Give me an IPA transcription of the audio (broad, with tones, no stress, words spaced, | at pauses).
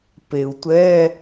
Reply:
pe˩u̯tʷɛ˧˥˧